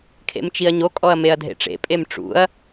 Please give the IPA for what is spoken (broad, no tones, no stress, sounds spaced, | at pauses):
kʰ ḛ m t͡ʃ i ɐ̯ ɲ o kʼ ɔ ɐ̯ m e ɐ̯ dʱ ḛ ʈ͡ʂ ḛ pʼ e m ʈ͡ʂ ṵ ɐ̯